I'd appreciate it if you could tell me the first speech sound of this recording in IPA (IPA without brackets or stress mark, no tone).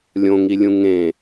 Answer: lʲ